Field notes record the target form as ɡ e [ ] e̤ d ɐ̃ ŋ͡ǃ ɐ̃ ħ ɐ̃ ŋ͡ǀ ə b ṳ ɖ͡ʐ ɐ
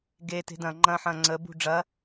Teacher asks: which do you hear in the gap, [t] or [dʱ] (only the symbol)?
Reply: t